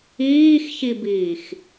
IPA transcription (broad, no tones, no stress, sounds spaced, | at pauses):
iː x ç i b iː x